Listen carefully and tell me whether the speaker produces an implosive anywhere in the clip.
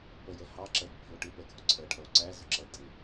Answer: no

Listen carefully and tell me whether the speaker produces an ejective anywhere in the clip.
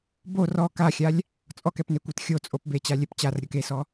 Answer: yes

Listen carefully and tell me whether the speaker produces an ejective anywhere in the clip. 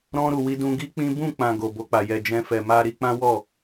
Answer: no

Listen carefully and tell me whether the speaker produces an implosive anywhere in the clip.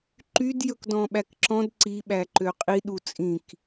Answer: yes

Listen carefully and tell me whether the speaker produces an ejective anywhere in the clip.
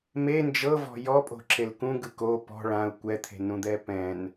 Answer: yes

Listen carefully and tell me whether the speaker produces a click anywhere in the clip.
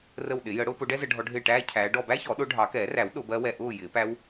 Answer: no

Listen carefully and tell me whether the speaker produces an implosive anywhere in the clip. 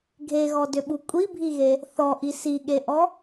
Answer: yes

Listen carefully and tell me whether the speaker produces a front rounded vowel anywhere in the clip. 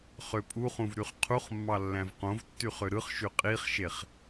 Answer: yes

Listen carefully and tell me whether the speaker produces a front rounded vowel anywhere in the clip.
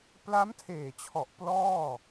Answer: no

